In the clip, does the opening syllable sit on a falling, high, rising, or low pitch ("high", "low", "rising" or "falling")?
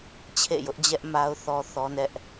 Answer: falling